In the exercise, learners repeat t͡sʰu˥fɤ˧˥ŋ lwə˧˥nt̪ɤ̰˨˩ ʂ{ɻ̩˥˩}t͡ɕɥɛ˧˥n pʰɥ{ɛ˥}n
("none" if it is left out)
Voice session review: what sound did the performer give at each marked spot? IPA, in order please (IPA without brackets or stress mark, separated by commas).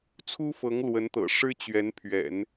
ɻ̩˥, ɛ̰˨˩˦